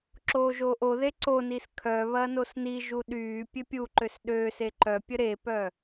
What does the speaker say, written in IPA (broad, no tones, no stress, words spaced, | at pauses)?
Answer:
ǁoːʒoːʔoðe ǀonis kʰœ βɐnosniʒu ɗyː pʲøpʲuǃøs ɗø seǃœpʲə ɾepœ